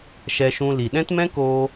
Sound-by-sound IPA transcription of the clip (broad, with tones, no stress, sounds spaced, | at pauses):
ʃ ɛ˧ ʃ ũ˧ l i˨ ɗ ɛ̃˦ t m ɛ̃˦ k oː˧